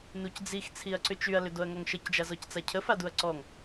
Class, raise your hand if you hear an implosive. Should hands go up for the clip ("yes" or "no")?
no